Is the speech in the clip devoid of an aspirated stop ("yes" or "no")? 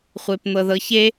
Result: yes